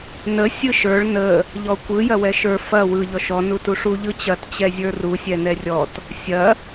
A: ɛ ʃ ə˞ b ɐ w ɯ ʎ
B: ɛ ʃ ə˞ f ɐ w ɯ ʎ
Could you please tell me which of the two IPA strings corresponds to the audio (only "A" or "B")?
B